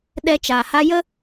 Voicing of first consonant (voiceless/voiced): voiced